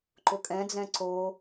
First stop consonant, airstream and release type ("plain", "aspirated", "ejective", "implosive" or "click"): click